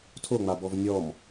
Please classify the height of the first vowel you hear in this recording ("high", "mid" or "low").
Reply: mid